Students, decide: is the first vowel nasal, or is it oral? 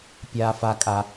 oral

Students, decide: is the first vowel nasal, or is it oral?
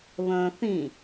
nasal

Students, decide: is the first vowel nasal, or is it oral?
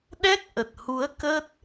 oral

